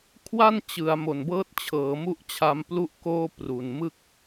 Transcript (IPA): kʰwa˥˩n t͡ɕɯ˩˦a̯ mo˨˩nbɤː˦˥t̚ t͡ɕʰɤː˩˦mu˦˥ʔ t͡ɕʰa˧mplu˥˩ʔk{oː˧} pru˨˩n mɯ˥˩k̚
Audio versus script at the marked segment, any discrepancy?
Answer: yes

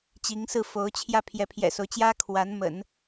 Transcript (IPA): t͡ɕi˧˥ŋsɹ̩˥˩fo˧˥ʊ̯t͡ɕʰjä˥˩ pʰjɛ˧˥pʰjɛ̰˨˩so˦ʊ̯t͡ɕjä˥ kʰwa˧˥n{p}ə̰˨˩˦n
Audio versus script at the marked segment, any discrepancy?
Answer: yes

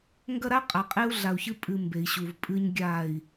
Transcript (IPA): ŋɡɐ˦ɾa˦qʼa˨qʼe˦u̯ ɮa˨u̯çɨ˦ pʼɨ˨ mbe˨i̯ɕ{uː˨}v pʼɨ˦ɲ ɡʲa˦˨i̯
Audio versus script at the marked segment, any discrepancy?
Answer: yes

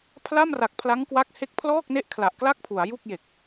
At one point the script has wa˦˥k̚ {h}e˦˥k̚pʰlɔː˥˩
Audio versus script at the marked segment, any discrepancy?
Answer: no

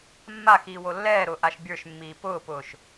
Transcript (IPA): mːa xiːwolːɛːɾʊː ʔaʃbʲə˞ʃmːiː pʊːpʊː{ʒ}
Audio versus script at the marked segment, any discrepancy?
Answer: yes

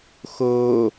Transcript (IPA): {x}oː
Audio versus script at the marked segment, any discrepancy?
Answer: no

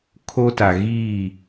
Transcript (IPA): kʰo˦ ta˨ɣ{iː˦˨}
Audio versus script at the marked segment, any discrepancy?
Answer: no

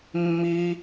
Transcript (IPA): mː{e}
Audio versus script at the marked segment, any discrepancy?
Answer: yes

